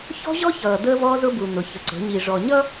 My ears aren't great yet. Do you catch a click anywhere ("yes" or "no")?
yes